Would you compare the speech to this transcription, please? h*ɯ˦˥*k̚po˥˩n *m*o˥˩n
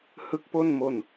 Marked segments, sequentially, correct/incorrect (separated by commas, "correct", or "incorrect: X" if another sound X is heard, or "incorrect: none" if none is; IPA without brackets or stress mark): correct, correct